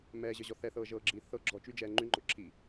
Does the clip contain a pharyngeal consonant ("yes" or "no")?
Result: no